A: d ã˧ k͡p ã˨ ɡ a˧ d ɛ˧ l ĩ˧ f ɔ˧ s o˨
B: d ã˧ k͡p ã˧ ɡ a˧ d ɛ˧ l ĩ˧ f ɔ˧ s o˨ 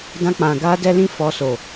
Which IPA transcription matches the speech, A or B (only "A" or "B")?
A